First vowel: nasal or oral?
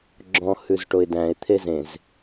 nasal